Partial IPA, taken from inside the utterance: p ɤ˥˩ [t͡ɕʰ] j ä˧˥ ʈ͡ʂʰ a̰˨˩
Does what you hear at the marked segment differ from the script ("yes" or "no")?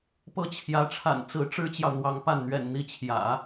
no